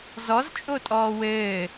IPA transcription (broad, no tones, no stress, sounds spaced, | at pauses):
z ɔ z t͡ʃʼ o tʼ ɔː w ɘː